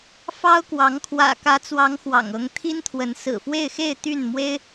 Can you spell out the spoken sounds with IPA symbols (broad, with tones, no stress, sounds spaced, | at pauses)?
f ɑ˥ ʊ̯ k w ɑ˧˥ ŋ kʰ w ä̰˨˩ k ä˧˥ t͡s w ɑ˧˥ ŋ x w ɑ̰˨˩ ŋ ɤ˧˥ ŋ t̪ʰ i˥ n t̪ʰ w ə˧˥ n s ɹ̩˨˩ f w e˥˧ ɪ̯ x e˥˧ ɪ̯ t̪ y˥˩ n m w e˥ ɪ̯